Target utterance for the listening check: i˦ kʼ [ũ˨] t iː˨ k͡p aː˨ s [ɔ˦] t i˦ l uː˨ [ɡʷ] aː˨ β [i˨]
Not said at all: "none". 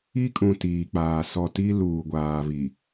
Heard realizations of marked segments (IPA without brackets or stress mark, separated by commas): ũ˨, ɔ˨, ɡʷ, i˨